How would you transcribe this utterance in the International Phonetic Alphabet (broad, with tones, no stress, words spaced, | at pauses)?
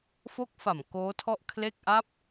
fo˦˥k̚fa˨˩m koː˦˥tʰɔ˥˩ʔ kʰle˥˩k̚ ʔa˦˥p̚